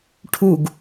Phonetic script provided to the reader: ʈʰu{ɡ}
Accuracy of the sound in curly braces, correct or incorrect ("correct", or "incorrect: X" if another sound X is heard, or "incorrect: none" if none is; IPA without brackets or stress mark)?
correct